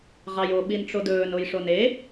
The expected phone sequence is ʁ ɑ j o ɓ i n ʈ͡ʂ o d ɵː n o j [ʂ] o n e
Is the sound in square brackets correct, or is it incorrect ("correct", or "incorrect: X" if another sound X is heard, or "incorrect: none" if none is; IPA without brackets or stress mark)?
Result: correct